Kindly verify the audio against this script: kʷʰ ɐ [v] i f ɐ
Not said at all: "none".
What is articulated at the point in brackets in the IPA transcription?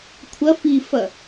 f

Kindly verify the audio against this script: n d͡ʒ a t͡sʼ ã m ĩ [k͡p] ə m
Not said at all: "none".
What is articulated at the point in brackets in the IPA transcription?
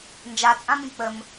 k͡p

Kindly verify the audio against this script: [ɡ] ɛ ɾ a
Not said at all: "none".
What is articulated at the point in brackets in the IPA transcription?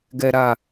ɡ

